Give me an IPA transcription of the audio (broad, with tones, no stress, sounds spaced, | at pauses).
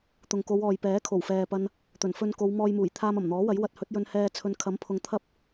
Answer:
t̪ ʊ˨ ŋ k o˨˧ w ɔː˨ j p ɛː˨˥ kʰ o˨˩ w f ɛː˨ p ɐ˧ n | t̪ ɵ˨˩ n f ɵ˧ n k o˨˧ w m ɔː˧ j m uː˨˩ j t̪ʰ aː˧ m ɐ˨˩ m n̪ ɔː˨˥ w ɐ˨˥ j w ɐ˧ t̚ h ɵ˨˥ t̚ j ɵ˧ n h ɛː˧ t͡sʰ ɵ˨˧ n kʰ ɐ˨˥ m pʰ ʊ˨ ŋ t̪ʰ ɐ˥ p̚